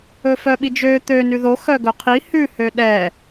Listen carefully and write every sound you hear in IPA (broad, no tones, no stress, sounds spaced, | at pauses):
ɵ f œ ɓ i d͡ʒ ø t̪ ø n ʉ ð o x œ ɡ ɵ qʰ i h ʉ h ø ɗ ɛ